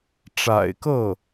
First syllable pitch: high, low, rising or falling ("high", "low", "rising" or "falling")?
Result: low